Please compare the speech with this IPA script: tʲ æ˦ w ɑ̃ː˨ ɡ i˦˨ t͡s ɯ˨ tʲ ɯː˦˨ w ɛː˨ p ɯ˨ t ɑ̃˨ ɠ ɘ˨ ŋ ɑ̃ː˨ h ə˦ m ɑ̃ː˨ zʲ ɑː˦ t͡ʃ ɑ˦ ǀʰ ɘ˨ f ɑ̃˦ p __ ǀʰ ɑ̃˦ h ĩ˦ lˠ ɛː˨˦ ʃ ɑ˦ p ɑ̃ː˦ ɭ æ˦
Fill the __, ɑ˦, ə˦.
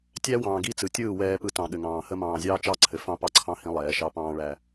ɑ˦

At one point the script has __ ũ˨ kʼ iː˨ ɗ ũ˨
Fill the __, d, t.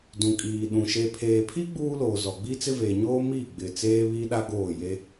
d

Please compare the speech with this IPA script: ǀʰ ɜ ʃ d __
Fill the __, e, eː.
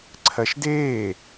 eː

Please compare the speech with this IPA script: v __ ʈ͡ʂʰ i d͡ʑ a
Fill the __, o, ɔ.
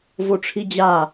o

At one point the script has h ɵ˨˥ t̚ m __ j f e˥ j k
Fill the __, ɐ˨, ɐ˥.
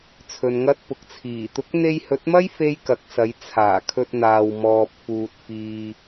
ɐ˥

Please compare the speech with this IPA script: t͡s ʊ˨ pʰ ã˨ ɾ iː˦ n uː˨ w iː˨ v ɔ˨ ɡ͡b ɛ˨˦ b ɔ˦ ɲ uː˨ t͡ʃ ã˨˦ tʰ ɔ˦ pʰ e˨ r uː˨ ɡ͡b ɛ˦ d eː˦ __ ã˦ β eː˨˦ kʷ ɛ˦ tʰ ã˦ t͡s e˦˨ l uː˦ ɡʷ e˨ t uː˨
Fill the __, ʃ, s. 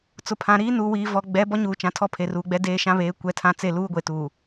ʃ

